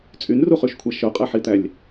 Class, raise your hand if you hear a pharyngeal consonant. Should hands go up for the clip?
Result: yes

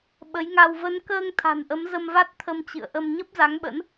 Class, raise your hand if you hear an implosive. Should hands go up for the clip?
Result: yes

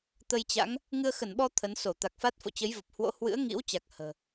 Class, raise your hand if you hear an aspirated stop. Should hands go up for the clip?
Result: yes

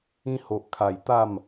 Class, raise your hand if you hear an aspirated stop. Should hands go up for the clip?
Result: yes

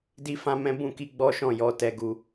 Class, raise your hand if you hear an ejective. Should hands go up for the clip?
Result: no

